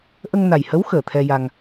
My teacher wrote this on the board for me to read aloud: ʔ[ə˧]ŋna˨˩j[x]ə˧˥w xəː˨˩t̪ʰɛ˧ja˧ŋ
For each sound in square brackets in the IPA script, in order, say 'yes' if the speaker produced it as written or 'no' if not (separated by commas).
yes, no